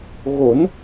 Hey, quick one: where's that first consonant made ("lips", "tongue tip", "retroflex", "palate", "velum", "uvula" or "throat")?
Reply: velum